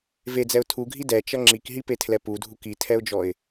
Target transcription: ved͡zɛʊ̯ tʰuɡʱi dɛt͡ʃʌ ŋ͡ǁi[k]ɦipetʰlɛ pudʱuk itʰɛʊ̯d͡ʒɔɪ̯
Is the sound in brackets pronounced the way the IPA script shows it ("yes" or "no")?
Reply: yes